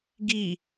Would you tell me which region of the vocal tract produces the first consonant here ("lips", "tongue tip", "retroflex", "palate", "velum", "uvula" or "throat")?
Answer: velum